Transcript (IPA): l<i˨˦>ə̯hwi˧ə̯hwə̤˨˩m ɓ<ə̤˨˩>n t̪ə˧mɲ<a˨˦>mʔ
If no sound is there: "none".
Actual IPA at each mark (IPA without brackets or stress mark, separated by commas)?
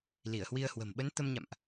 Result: i˧˩, ə˨˦, a̰˧˨